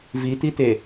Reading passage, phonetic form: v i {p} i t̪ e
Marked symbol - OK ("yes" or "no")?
no